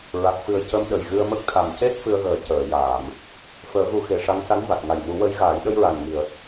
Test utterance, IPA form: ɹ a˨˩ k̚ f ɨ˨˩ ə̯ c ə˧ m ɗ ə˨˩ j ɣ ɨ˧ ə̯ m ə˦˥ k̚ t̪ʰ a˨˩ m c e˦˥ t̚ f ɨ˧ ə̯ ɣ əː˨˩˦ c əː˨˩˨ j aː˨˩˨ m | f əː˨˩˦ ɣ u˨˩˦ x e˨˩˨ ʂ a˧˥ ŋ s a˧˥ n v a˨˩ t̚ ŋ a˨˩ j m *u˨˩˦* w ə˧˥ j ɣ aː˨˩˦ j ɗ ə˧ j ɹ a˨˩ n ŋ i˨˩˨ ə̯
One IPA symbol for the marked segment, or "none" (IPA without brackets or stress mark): u˨˩˦